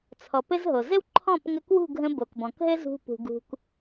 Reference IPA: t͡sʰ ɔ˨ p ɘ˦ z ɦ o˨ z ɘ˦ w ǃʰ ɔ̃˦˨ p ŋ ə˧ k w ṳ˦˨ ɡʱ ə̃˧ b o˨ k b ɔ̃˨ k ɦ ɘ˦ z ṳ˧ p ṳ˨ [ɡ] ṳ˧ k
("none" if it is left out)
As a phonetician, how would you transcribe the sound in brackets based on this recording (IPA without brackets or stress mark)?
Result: ɡ